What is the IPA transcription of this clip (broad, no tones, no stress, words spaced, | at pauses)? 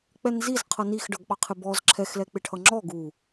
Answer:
k͡pɛnzizqʰʌ nixɖʌɡɓɑ qʰɪbɔz ǁʰɛxlɛ k͡pɪʈʰʌŋ͡ǁɔ ɡu